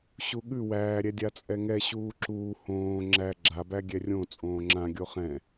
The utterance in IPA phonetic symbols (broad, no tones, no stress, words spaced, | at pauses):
ɕuɠʉ wæːɾʲɛ dʲat͡sʼɛŋɛ ɕuːǁuː hõː ŋ͡ǁæ ɡ͡ǁabæ ɡʲɛrʲõ t͡sʼõːŋ͡ǁã ɡʲoχɛ̃